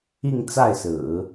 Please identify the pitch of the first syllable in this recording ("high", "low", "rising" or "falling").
falling